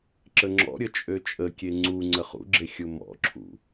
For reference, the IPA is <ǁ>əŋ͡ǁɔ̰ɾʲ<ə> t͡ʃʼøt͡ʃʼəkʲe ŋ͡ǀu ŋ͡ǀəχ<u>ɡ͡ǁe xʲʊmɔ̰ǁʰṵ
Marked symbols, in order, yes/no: yes, yes, no

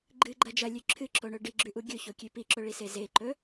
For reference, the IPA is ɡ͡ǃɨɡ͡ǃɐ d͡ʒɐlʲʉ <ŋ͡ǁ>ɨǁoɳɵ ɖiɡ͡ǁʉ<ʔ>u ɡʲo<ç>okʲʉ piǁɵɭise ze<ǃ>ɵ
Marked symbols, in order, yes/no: no, yes, yes, yes

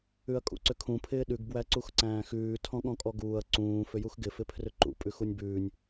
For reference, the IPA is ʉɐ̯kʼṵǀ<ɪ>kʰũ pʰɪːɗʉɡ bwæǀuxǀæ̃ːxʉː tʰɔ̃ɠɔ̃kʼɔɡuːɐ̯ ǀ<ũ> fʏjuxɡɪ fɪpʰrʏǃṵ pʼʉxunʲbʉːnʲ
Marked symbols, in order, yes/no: no, no

